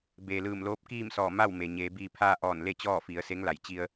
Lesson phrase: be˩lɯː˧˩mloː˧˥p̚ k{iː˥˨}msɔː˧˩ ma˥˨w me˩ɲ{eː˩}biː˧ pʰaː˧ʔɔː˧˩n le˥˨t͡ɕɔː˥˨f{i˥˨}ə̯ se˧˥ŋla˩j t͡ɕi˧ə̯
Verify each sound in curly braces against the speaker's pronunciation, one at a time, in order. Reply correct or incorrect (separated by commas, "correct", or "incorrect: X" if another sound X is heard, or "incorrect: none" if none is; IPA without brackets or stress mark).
correct, incorrect: eː˩˧, incorrect: i˩˧